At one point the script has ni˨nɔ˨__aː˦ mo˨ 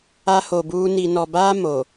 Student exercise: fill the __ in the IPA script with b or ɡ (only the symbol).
b